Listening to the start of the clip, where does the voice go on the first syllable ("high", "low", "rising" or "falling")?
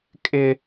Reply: high